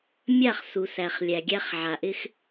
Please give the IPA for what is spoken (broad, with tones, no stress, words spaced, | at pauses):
mʲa˦˨χ su˨sæ˨χ lʲæ˨ɡʲæ˧χʕa˨ ʔɪ˦x